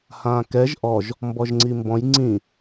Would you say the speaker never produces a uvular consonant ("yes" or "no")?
yes